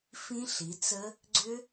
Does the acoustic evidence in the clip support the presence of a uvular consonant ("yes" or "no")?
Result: no